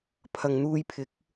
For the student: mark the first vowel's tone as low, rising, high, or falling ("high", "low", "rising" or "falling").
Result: low